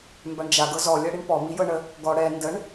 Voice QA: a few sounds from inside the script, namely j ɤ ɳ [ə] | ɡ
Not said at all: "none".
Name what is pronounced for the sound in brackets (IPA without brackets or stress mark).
ə